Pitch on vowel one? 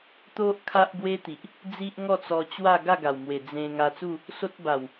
high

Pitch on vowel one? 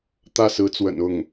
falling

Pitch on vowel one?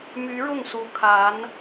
rising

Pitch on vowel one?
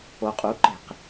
low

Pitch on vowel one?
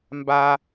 low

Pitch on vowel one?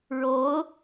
rising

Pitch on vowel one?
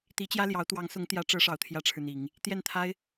rising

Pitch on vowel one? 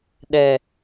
low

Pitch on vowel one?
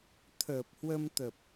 low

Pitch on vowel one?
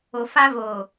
low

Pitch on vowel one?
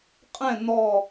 falling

